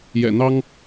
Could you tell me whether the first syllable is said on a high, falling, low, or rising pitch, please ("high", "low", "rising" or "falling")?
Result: low